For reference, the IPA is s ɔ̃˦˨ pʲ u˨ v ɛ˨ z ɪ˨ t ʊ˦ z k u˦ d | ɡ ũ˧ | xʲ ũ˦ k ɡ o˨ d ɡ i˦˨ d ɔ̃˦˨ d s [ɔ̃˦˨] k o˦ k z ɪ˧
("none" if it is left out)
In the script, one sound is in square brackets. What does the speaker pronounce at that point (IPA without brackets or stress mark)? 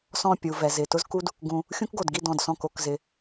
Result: ɔ̃˦˨